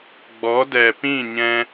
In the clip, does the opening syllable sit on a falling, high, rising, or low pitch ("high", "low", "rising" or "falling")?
rising